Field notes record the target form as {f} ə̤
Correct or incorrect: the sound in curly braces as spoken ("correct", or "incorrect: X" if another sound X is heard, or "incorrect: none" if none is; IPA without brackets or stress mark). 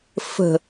correct